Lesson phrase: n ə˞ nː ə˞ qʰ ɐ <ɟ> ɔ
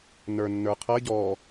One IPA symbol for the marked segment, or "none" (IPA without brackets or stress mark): ɟ